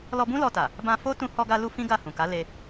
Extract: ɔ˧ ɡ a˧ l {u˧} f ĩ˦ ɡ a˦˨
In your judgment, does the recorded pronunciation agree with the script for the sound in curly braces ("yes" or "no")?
yes